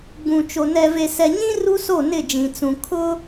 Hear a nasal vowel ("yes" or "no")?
yes